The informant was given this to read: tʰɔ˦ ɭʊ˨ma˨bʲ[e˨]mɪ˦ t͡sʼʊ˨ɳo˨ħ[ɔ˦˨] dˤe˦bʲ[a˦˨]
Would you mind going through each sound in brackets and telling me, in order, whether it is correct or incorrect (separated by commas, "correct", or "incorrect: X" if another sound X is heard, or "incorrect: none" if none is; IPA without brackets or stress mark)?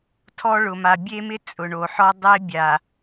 incorrect: e˦, incorrect: ɔ˦, incorrect: a˨